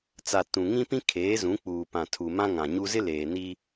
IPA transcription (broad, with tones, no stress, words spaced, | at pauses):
t͡sa˨ tũ˨ŋĩ˦ pĩ˦ kʰeː˨˦zũ˨˦k͡puː˨ pã˨ tʰu˨mã˦ŋã˨ɲu˦ zɪ˦leː˨ni˦